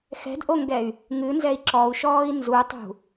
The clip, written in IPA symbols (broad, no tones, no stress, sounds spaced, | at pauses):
x ɛ̤ d ʔ o ŋ ɡ ɛ y̯ | ŋ ɨ n z ɛ i̯ ǁ ɔ u̯ ʃ ɔː i̯ n z u tˤ ṳ